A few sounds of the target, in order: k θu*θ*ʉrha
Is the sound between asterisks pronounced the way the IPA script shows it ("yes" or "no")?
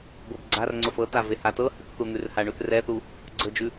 no